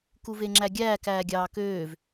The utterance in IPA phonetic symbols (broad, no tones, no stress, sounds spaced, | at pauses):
k u v e ŋ͡ǁ æ ɡʲ æː k æː ɡʲ ɑː k øː v